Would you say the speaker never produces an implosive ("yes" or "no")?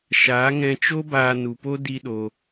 no